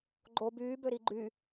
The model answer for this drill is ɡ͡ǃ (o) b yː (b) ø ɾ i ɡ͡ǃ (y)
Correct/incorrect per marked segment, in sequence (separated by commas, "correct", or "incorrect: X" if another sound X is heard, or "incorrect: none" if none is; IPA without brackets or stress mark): correct, correct, correct